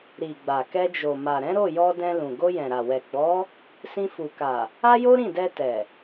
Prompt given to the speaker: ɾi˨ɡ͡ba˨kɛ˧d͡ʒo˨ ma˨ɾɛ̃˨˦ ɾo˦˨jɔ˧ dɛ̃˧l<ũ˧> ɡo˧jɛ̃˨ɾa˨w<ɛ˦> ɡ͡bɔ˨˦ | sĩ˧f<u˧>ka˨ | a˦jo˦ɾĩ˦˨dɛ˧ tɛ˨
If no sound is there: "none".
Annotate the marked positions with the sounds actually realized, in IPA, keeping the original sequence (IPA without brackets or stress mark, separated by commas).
ũ˨, ɛ˨, u˨